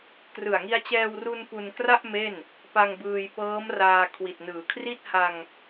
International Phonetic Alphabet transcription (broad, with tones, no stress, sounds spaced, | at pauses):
k r ɯ˨˩ a̯ ŋ i˧ a̯ t͡ɕ ɛː˧ w r u˧ n p u˧ n k r a˥˩ ʔ m e˥˩ n | p a˧ ŋ b ɯː˧ j p ɤː˦˥ m r aː˧ kʰ w i˨˩ t̚ n ɯː˩˦ kʰ r i˥˩ t̚ h a˧ ŋ